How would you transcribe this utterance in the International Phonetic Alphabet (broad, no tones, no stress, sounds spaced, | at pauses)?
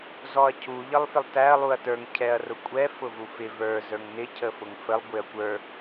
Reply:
z ɔ ɐ̯ cʰ u ʎ ʌ lˠ f ɪ lˠ t æ ɐ̯ lˠ u ɐ̯ t ə˞ ŋ cʰ ɛ ɐ̯ r ʊ kʷʼ ɛ f ʊ v u f ɪ v ə˞ z ə˞ ŋ n ɪ cʰ ə f ʊ ŋ f ə lˠ ɡʷ ɪ ɐ̯ kʷ ə˞